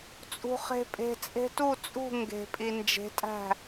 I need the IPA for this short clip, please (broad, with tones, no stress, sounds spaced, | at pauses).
t͡sʼ ṳ˨ χ e̤˨ pʼ e̤˨ t͡sʼ e̤˧ t u˦˨ t͡sʼ ṳ˦˨ ŋ ɡ e̤˨ pʼ i˨ n d͡ʒ e̤˨˦ tʼ æ̤˦˨